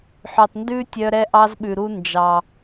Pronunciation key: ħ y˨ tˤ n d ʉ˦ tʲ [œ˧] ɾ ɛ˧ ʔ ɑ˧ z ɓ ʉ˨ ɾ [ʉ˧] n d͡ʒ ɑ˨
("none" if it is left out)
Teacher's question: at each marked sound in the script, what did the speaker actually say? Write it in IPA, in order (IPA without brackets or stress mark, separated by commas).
œ˧, u˧